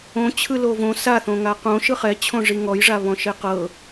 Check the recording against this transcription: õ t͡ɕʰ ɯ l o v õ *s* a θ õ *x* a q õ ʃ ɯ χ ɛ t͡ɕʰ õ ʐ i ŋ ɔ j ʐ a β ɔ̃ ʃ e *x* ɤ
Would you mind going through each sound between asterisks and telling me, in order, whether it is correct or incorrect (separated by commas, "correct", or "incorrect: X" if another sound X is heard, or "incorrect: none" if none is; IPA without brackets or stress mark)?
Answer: correct, incorrect: ŋ, incorrect: q